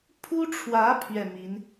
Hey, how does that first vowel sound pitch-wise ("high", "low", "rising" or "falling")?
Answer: high